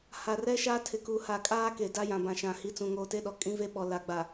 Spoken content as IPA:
h a˨ r ɛ˦ ʃ aː˦ tʰ ɪ˨ k u˨ h a˨ kʼ aː˦ k e˨ d a˦ j ã˨ b ã˨ ʃ ã˨ h i˨˦ t͡s ũ˨ ŋ oː˨ t e˦ ɗ ɔ˨ kʼ ĩ˦ v e˦ ɓ ɔ˨ l a˨ ɡ͡b a˨

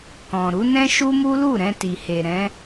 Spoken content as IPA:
k ɔ̃˨ ɾ u˨˦ n ɛ̃˦ ʃ u˦ m u˦ l u˦˨ ɾ ɛ̃˧ t i˨ h e˨ ɾ ɛ̃˨˦

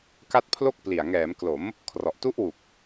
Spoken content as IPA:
k a˥˩ t̚ pʰ l o˥˩ k̚ p l i˨˩ a̯ ŋ ɛː˩˦ m k l o˩˦ m | kʰ r ɔ˨˩ ʔ t u˦˥ ʔ w u˨˩ k̚

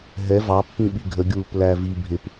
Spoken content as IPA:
ɦ ɛ v ɑ pː ĩ ɓ i ɡʱ ə ɡʲ uː p l æ v i bʱ ɪ p

